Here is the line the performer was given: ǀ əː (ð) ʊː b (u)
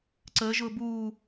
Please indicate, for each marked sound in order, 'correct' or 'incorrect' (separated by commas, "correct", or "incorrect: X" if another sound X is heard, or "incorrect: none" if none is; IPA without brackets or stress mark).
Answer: incorrect: ʒ, incorrect: uː